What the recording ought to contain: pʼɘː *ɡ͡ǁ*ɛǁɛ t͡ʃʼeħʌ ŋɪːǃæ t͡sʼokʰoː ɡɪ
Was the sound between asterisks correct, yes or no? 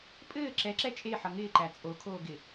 no